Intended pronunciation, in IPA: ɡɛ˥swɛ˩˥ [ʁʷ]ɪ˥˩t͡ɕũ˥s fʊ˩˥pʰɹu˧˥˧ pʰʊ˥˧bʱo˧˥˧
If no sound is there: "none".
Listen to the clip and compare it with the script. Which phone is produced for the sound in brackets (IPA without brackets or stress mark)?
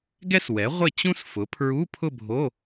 ʁʷ